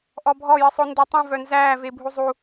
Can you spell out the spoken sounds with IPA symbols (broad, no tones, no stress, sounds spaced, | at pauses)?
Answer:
ʔ ɔ bʱ ɔ j ɨ sˤ o n d əː tˤ ũ v œ n z æː v e bʱ u zˤ u